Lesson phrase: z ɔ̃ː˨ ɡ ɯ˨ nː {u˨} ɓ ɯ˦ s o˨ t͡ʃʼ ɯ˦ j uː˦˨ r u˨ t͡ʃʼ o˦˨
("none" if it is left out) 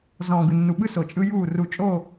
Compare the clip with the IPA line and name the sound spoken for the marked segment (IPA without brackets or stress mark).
u˨